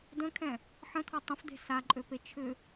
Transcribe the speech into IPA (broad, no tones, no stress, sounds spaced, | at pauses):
d ə̃ kʰ ɛ̃ | ħ ə̃ t̪ʰ ɔ tˤ ə̃ f d̪ e̤ s a ǃʼ ø p e t͡ʃʰ ʏ